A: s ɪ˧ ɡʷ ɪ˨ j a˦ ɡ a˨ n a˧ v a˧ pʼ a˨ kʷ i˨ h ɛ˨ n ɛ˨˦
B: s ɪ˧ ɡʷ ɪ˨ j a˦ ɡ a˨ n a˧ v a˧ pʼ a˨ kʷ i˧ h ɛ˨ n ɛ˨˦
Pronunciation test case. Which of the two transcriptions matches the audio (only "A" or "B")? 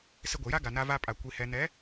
A